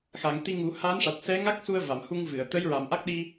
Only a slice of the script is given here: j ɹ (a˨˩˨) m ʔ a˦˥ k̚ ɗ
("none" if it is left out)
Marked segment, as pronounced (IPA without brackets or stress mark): a˨˩˨